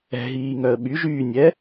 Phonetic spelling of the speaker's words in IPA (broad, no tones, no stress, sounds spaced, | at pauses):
ɛ̤ ɦ iː ŋ œ ə̯ ɓ y ʒ yː nʲ ɛ